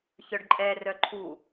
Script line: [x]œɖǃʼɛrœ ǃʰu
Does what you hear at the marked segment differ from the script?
yes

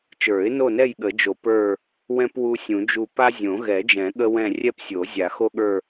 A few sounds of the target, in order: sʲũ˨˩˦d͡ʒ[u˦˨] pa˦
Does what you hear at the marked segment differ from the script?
no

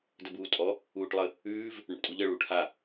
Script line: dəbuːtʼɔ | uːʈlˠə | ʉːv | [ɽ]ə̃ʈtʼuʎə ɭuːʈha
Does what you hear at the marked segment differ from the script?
no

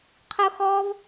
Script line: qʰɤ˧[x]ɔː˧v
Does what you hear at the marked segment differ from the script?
no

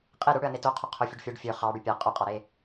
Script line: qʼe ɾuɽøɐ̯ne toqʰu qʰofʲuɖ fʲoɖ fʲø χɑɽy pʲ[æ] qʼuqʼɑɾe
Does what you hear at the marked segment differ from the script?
no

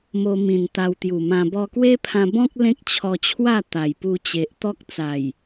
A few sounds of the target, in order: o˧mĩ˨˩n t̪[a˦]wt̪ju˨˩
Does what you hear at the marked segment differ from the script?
yes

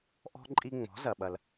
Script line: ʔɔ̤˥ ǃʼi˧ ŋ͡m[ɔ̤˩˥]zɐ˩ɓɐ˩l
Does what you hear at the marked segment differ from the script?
no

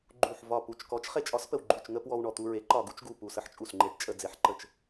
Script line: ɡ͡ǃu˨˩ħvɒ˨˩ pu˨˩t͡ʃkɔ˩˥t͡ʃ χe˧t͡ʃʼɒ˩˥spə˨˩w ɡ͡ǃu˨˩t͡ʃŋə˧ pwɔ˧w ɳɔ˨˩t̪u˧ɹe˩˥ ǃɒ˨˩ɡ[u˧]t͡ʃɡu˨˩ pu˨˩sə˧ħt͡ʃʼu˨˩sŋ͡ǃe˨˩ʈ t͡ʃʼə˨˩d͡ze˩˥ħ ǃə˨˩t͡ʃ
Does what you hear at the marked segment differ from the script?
no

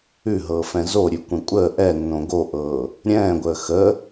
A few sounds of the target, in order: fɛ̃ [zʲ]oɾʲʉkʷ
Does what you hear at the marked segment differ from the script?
yes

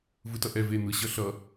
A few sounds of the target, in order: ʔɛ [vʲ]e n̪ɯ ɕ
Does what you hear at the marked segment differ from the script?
yes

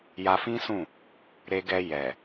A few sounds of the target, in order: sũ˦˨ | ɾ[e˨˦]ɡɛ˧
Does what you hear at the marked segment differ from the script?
yes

